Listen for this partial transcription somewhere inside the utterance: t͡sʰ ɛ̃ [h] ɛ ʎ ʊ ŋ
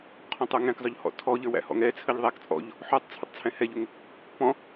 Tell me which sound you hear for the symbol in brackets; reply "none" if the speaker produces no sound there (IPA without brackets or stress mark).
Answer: h